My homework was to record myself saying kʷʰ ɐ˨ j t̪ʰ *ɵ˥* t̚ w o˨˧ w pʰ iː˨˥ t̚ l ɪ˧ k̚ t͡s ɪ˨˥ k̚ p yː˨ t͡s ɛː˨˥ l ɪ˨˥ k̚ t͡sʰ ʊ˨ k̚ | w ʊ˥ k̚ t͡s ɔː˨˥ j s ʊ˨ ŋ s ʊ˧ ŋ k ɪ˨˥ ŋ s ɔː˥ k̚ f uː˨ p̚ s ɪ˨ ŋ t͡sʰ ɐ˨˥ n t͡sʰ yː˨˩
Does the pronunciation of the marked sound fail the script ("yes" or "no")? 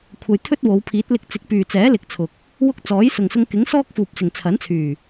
no